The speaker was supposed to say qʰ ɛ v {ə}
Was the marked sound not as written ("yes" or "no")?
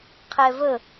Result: no